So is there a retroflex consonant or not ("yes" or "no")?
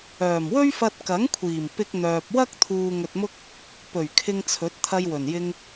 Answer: no